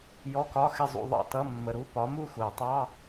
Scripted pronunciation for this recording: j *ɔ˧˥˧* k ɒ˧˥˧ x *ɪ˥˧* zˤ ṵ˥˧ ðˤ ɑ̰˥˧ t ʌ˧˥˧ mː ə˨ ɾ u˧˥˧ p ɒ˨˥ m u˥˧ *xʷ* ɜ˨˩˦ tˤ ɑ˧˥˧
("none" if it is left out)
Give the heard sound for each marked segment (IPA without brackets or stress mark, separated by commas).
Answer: ɔ˧˥˧, ɪ˥˧, xʷ